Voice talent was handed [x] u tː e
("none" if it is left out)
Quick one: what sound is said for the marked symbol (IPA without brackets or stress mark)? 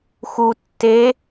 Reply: x